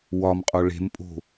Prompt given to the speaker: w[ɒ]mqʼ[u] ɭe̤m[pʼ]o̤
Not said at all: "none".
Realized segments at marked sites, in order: ɒ, o, pʼ

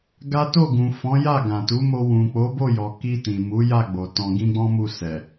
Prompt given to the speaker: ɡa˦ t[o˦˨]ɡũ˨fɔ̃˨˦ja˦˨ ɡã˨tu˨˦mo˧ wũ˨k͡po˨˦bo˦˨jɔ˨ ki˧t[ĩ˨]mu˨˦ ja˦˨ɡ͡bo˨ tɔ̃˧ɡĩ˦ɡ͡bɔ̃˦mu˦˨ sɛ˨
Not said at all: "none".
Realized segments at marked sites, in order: o˦˨, ĩ˨

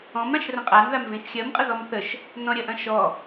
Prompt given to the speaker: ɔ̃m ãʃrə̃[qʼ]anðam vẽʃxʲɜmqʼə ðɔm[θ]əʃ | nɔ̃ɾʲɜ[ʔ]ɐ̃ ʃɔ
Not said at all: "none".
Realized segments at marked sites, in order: qʼ, θ, ʔ

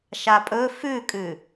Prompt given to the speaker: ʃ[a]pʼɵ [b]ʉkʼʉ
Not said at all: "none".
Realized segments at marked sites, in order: a, f

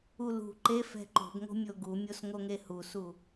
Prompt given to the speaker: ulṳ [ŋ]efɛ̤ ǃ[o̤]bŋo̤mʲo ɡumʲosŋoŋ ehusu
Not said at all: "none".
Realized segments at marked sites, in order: ǃ, o̤

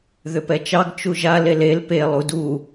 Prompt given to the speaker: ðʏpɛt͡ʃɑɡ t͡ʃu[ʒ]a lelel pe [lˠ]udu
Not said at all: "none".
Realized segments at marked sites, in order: ʒ, lˠ

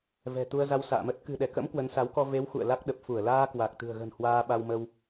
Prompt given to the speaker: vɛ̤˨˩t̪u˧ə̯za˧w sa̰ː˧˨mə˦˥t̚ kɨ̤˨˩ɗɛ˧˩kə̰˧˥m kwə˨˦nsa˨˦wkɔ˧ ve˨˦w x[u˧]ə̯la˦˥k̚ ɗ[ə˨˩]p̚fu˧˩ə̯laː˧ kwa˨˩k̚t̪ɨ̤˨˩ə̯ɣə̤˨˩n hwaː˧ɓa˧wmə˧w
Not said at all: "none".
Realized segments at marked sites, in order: ṵ˧˨, ə˨˩

